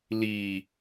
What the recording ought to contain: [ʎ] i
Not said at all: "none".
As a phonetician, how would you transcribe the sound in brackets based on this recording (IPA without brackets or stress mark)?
l